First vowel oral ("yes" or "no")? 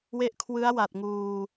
yes